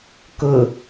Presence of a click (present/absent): absent